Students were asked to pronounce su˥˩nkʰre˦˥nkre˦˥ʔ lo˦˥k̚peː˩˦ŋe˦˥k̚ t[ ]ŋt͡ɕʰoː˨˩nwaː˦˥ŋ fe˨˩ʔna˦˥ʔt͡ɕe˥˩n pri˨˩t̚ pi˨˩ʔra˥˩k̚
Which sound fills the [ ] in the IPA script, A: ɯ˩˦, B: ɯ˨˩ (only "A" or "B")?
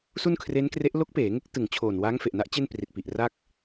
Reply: B